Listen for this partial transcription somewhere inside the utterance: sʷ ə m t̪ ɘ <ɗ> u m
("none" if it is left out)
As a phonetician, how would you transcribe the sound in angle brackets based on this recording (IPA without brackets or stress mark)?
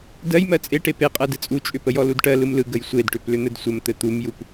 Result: t̪